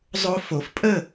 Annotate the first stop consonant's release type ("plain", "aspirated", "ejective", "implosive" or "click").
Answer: ejective